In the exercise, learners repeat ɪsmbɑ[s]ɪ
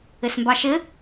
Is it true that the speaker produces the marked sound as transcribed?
no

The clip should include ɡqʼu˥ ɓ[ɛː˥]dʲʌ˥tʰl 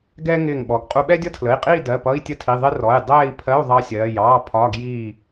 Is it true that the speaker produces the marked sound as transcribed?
no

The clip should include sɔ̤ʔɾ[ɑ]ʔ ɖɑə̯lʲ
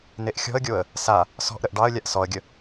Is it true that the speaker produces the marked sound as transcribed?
no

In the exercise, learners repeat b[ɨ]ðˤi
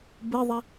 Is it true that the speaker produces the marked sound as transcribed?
yes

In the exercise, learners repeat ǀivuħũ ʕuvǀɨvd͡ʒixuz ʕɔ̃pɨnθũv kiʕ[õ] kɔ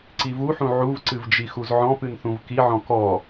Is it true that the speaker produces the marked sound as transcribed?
no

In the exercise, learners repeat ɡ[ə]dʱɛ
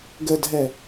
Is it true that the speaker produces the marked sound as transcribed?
yes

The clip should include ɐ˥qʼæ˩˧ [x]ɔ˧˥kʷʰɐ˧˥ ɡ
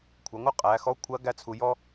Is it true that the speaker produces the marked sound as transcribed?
yes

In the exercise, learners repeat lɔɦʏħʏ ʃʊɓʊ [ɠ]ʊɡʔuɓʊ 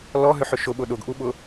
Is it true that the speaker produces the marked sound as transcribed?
no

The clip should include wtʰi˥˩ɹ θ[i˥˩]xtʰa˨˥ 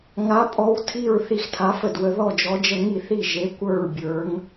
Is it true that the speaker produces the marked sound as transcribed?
yes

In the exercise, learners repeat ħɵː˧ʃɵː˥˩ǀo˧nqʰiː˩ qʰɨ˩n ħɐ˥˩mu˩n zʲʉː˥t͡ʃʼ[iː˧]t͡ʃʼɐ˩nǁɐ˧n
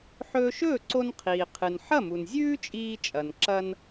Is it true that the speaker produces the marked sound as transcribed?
yes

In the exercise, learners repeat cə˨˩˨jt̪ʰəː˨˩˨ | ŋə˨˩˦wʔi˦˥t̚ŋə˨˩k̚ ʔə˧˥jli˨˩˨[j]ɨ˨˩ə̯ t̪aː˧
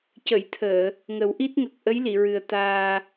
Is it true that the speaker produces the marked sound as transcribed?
no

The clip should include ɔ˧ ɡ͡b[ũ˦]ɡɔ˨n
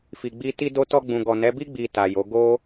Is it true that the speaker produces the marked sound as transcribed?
no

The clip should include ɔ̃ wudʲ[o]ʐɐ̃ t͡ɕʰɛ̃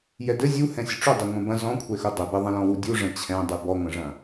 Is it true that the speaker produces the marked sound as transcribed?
no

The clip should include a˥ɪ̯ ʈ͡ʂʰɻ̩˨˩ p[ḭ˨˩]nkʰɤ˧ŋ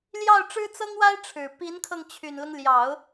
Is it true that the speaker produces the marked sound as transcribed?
no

